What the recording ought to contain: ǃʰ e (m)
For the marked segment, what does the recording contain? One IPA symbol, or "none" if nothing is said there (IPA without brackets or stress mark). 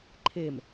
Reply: m